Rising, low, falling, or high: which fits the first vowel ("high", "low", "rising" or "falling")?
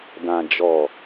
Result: low